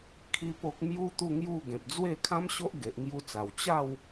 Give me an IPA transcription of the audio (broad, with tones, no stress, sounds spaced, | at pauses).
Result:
kʰ i˦ p o˦ k̚ m j u˦ t̪ u˥˧ ŋ j u˥˧ ɡ ẽ˨ p̚ d͡z w e˥˧ kʰ ã˦ m ɕ o˦ ʔ ɡ e˨ ʔ ŋ j u˧ t͡s a˨˩ w t͡ɕ a˥˧ w